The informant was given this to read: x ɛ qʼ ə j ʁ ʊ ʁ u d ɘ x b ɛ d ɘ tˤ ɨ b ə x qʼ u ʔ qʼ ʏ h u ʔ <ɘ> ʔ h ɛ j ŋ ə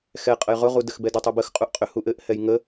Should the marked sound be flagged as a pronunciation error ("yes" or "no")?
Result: no